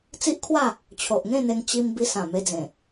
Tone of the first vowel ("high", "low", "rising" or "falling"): high